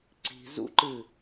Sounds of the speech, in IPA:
ǀi̤ zṵǃɨ

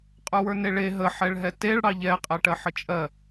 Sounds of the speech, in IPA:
qʼə˞wə˞neɭe ɦə ħɛɭɦɛteɭ ɽɑʎɛ qʼɛʈɜħət͡ʃʼɜ

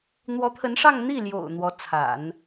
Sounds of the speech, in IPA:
n̪wɔ˧˥t̪ʰə˧˥nʂɑ˥˧ŋ n̪i˥˩ljo̰˨˩ʊ̯ n̪wɔ˧˥t͡sʰa̰˨˩˦n

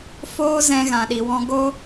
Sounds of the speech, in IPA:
foː˦zɛ̃˧ ɣã˨ɗi˨wɔ̃˧ ɡo˦

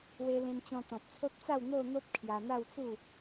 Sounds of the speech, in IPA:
we˧lẽ˧mt͡ɕɔ̃˧ t̪ɔ̃˨p̚t͡sʰo˦t̚ t͡sa˥˧w n̪o˥˧n̪o˦p̚ kʰja˧n̪a˥˧wt͡su˥˧

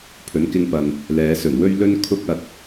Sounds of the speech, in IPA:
pʰɵ˨˥nkɪ˧ŋpɐ˨n | lɛː˨˧sɵ˨˩nwɵ˥ɥlɵ˥n kʰʊ˥k̚ɐ˧t̚

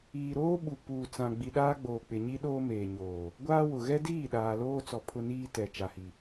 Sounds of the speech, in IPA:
iː˨ɾoː˦ɓu˨ puː˨t͡sã˨ ɡ͡bi˨ɗaː˦ɡ͡boː˨k͡pɪ˨ ɲi˦ɗoː˦meː˨ ɲoː˨ | ɡʷaː˦ wʊ˨ ɣɛ˦diː˦˨ ɗaː˨loː˦t͡sɔ˨ pʰʊ˦niː˦tɛ˨ t͡ʃa˨hi˨

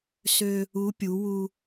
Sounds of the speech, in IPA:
sø˧ | u˧˥ pʲu˩˧wu˧

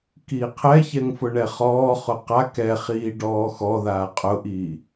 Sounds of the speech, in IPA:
kiːqʰɛçɛŋ fʊɳɛχɔːχʊ qa kɛχiː ɖɔːxɔðaː qʼʊʔiː

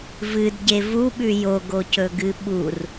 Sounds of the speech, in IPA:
vɨdɟe vuɓʉ joɡocɵɡɨ ɓur

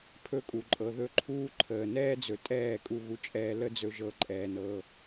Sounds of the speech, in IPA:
pʰɵ˦kʼu˨ǃʼɤ˨ ðɵ˦ǃʰuː˦ǃʰəː˨ nɛː˦d͡zɵ˨ tʼɛː˦˨kʼu˧ ɣu˧t͡ʃʼɛː˧ lə˦ d͡zɵ˦ʒɤ˧ǃʼɛː˨nɤː˧

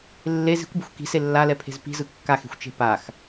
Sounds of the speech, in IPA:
lːe zi̤kʷbi̤xʷ ki̤se lːalɛpʰe̤z pi̤zɯ kːaxe̤xʷt͡ʃe̤ pax

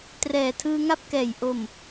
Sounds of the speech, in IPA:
trɛː˨˩tʰɯː˧ŋa˥˩p̚kɛː˨˩j ʔo˨˩m

